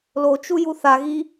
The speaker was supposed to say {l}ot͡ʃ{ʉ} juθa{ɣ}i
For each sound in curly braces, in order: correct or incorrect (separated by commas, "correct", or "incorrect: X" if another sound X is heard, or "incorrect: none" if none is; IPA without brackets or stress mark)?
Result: correct, incorrect: u, correct